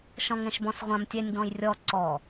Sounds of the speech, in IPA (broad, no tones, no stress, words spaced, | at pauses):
ʃɔ̃ŋɛ̃ʃbɔ̃sʁʷãm tʲɛnʲɡɔ̃jrʲɔ ǀɔ